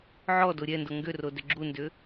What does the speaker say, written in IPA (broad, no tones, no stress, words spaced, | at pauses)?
ʕɔdo ɾʲɛndo ŋɡʏrodʏ ɡ͡ǁundʏ